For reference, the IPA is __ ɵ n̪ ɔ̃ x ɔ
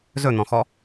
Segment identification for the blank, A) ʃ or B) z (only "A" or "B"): B